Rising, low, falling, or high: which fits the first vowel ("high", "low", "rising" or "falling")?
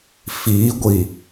rising